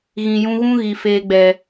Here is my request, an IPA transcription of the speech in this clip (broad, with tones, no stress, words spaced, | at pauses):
ɣĩ˨jũ˧ɣũ˦ ɣi˨ feː˨ɡ͡bɛ˨